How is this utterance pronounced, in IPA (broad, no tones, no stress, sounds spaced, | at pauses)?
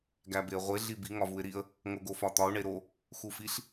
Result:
ɡ æ b e ə̯ ʁʷ e ɮ i b i ŋ ɒ v u ɪ̯ ɾ i ə̯ | ŋ o ɡ o f ɒ t̪ ɒ ʊ̯ ɳ e ɾ o | x u f i ɬ